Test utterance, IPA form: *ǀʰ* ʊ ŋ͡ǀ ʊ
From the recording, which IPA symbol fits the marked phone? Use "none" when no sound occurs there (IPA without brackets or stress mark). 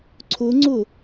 ǀʰ